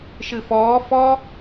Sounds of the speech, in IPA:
ʃɨfɔː fɔ

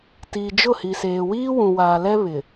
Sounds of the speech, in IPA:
ti˨ d͡ʒʊ˦˨hi˨seː˨ wiː˦wũ˨waː˨lɛ˦ βɪ˨

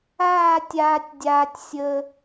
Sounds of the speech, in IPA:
aː˥˧tʲaː˧tʲdʲaː˧tʲsʲə˧

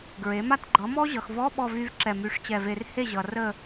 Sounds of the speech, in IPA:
ɡɹe˩˥ma˥˧t ɡ͡ǃʌ˩˥mɔ˦˥ʑʌ˨xvɔ˧˥˧ ɓɔ˥˧vy˦˥v ǁɛ˥˩my˧˥˧ʂt͡ɕɛ˥˩ve˦˥r he˥˩ʑʌ˨ rə˥˧

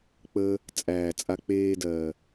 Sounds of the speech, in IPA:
k͡pəː˧ | t͡sʼæː˨t͡sʼa˧k͡peː˧dɜː˨

